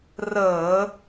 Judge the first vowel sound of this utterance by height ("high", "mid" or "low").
mid